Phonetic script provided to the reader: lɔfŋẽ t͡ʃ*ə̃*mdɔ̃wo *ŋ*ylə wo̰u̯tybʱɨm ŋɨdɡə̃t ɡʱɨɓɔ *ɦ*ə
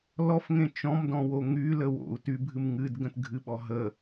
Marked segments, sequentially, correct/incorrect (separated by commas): incorrect, correct, correct